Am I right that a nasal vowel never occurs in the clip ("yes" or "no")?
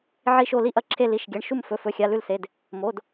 yes